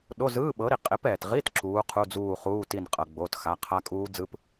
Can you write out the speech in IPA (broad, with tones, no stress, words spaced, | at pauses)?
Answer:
ɗo˧˥˧zɯː˧˥˧ɓɤ˨˥ɾi˩ qʼe˨˥p ɛː˩tʁi˧˥˧t ǁuː˨˥qʰu˧˥˧d͡zuː˦˨ χuː˧˥˧ti˦˨n qʼɤ˩ ɡ͡bo˩˧˩txa˩˧˩ qʰa˦˥kʼuː˦˥d͡zɯ˧˥˧p